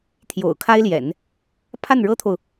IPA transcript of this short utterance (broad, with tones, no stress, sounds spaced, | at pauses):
t̪ʰ j o̰˨˩ ʊ̯ kʰ a˥ ɪ̯ l j ɛ̰˨˩˦ n | pʰ a˥˩ n ɻ ɤ˥ t̪ʰ o˨ ʊ̯